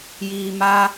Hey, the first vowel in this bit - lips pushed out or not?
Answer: no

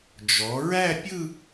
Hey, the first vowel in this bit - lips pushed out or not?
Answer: yes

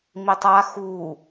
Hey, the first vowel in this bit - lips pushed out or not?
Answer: no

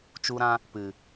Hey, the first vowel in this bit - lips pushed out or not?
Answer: yes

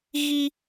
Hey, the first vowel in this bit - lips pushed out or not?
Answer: no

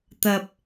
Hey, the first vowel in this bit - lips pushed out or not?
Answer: no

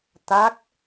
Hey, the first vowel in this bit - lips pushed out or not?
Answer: no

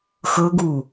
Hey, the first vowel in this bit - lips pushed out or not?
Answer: no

